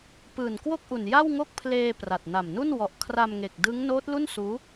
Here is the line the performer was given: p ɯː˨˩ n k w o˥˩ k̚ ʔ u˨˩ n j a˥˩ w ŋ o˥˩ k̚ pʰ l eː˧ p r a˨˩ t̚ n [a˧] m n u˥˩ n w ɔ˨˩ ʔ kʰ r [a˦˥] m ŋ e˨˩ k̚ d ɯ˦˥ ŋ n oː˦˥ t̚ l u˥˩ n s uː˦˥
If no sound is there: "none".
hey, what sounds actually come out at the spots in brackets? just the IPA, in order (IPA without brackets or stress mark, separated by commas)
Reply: a˨˩, a˧